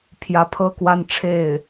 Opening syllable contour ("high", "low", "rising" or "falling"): rising